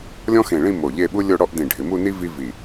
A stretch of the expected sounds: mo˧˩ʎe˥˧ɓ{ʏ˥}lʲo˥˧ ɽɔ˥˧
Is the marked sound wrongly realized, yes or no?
yes